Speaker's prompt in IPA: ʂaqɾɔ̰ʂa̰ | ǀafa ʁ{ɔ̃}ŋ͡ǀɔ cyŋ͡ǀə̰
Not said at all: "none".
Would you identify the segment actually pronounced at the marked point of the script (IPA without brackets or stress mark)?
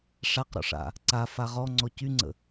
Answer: ɔ